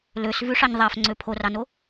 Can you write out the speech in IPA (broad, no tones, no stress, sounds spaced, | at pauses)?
l ø s v ʉ ʂ ɑ ɲ ðˤ æ f ŋ͡ǀ ø pʰ o r ɑ n o